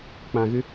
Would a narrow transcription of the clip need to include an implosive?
no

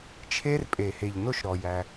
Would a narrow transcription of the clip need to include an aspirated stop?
yes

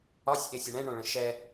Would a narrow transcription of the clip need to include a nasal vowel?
yes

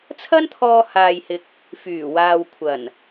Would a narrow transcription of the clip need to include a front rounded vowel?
yes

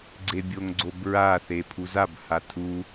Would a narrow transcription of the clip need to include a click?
yes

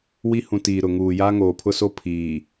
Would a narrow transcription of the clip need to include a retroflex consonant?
no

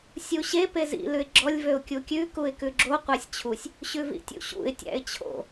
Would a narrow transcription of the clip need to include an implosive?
no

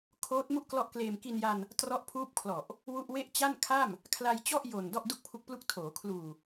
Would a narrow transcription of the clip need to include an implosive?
no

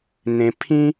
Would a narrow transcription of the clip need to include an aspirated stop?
yes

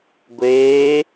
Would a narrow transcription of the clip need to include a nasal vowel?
no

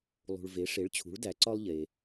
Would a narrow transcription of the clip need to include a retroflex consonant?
yes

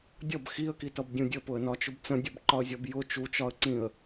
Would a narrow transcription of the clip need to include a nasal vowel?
yes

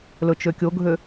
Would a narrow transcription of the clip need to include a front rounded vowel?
yes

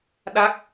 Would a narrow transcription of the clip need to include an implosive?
yes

